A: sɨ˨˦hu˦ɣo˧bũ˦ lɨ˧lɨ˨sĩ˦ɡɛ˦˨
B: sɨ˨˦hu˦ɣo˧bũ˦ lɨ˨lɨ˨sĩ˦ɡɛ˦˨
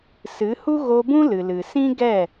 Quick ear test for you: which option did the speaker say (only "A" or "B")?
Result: B